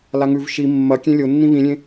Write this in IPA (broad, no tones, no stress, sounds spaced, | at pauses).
l a ŋ ʉ v ʃ i mː ɐ kʲ ẽ lʲ o nː ĩ β ĩ lʲ ẽ